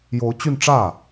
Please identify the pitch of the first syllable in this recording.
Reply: rising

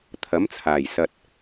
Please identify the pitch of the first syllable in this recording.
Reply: rising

